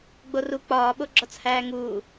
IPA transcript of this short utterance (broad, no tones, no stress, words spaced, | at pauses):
ɡ͡boru k͡pɒːɓoɡ͡ǁɒt͡s hæːŋuː